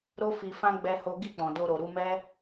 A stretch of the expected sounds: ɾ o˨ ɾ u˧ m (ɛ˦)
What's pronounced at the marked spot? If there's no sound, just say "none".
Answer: ɛ˦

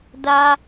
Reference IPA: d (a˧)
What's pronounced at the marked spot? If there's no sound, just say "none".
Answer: a˧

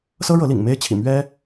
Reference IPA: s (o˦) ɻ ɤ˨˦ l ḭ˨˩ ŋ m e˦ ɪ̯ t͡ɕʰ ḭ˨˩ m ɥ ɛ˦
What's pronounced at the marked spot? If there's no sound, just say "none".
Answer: ɤ˦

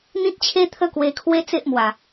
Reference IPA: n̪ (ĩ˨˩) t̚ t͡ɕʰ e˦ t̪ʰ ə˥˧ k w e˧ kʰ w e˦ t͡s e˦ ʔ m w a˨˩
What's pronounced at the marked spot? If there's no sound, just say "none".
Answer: ĩ˦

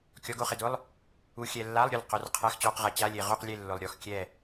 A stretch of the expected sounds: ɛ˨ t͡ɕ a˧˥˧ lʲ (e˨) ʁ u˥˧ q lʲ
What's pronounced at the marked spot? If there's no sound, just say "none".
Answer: e˨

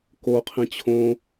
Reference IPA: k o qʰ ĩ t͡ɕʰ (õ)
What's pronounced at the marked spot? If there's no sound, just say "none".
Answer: õ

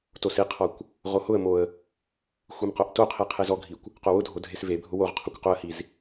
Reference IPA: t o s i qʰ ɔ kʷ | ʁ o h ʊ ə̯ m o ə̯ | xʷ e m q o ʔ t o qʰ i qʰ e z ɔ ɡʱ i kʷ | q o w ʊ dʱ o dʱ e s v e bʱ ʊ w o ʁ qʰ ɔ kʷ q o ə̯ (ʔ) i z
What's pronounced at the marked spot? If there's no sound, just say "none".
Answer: h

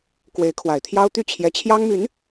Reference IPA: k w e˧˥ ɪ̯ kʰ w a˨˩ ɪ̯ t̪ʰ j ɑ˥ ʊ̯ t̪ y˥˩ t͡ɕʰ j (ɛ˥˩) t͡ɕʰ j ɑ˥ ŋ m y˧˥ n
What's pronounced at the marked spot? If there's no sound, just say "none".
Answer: ɛ˧˥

